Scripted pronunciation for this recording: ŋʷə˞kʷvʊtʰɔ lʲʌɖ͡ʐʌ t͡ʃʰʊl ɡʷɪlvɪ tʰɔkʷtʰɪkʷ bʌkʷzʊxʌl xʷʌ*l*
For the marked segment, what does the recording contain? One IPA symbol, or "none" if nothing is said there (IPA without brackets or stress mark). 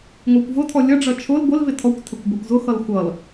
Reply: l